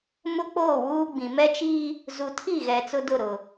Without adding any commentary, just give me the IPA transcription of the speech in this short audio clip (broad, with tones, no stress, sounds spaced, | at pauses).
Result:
m ʊ˦ k͡p oː˦˨ w uː˦ ɡ͡b ĩ˨ m ɛ˦ t͡ʃ iː˦ | z u˨ tʰ i˦˨ ɣ ɛ˨ t͡s ʊ˦ d ʊ˦˨ ɾ ʊ˨